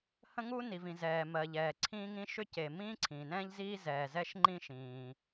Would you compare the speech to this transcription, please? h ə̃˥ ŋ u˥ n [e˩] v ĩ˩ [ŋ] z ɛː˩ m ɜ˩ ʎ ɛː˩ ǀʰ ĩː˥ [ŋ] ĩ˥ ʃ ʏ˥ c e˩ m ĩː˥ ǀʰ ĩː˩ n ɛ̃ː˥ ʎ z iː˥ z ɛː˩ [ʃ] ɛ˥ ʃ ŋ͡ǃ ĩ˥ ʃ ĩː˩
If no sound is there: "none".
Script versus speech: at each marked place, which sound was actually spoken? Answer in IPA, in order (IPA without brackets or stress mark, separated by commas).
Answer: i˩, none, ŋ, z